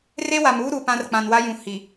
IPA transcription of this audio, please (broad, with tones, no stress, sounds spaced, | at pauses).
r e˦ w a˨ m uː˦ ɾ u˨ p ã˦ r k͡p ã˨ n w a˦ j ũ˨ h i˨